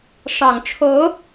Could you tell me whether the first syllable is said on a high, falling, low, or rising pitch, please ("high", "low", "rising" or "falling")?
low